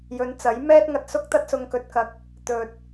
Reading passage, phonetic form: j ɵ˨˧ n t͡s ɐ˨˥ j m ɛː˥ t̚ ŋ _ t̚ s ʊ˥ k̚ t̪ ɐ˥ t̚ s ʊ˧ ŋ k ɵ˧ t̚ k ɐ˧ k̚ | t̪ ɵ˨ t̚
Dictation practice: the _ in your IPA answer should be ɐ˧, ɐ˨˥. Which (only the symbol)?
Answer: ɐ˧